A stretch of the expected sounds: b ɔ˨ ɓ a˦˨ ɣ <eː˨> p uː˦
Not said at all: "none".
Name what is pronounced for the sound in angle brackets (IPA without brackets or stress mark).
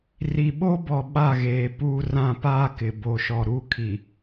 eː˨